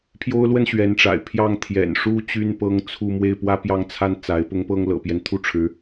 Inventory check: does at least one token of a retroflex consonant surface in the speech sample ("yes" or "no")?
yes